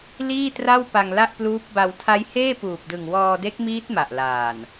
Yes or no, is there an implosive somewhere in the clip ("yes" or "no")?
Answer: no